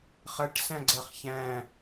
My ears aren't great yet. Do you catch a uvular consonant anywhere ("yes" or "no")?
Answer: yes